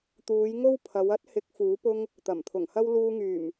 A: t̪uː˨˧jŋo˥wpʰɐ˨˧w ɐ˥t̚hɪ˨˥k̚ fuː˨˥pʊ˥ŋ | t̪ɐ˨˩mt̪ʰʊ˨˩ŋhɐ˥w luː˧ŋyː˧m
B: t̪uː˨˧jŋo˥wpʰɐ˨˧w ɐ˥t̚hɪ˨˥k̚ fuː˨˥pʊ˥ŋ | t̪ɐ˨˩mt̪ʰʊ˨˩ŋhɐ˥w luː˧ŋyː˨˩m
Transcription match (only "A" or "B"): B